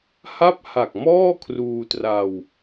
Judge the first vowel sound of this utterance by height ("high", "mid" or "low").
low